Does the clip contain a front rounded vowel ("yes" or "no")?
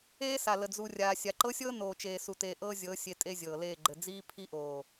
no